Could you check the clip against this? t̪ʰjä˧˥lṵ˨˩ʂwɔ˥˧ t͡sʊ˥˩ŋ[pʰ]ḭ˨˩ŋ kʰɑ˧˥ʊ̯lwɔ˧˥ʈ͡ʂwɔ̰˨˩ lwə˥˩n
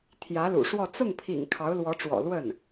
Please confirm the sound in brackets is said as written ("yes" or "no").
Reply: yes